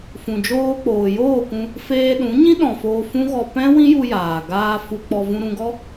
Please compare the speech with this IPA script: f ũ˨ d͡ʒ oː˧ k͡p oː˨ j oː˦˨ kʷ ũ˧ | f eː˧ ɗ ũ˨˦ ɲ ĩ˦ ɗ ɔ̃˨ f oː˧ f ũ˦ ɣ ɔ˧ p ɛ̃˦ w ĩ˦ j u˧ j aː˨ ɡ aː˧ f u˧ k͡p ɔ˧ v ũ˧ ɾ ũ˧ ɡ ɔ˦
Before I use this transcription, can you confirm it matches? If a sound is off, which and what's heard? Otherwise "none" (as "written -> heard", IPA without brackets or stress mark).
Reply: none